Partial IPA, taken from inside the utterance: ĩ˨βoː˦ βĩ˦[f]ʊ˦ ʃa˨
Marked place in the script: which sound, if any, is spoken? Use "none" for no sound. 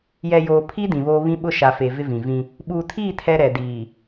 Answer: ɓ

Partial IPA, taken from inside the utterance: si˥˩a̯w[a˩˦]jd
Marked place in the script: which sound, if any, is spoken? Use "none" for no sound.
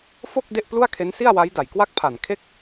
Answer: a˦˥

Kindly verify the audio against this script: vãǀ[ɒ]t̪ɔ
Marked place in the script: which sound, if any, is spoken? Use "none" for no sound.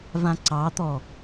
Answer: ɑ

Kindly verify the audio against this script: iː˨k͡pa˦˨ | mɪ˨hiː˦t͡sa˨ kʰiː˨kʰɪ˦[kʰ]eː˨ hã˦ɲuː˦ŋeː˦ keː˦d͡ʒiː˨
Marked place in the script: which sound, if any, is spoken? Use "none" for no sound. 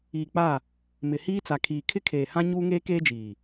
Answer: kʰ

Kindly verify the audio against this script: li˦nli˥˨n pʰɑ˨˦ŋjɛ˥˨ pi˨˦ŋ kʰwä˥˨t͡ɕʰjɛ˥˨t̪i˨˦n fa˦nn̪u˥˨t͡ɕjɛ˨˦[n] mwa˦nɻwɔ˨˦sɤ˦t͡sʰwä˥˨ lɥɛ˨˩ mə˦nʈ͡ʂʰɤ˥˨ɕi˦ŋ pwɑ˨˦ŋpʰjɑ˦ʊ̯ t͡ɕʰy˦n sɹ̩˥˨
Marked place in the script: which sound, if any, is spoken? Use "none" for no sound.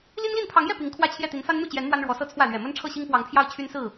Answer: n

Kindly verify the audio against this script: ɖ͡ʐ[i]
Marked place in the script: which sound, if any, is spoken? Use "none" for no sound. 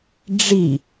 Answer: i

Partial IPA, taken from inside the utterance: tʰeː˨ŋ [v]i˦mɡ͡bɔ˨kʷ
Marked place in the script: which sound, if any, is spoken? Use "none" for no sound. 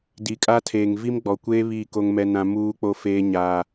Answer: v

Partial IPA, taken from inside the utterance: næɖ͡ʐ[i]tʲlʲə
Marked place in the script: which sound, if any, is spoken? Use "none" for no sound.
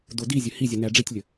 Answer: i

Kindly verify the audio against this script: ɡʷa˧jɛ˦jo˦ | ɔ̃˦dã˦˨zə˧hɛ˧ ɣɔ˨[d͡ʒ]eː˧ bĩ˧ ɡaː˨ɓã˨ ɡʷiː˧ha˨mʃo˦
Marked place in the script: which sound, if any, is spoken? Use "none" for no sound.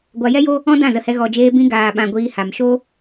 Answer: d͡ʒ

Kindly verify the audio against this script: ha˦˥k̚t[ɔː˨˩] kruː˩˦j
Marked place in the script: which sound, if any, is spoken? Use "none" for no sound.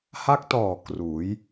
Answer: ɔː˨˩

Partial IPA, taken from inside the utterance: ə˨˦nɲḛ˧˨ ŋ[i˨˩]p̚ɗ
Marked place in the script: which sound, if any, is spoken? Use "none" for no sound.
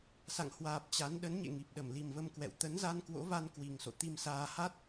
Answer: i˨˩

